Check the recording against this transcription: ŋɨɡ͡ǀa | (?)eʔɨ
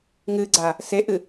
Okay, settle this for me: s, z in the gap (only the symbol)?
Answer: s